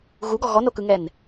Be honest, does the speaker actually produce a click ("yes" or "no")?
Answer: no